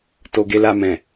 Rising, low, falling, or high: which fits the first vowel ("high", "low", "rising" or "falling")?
low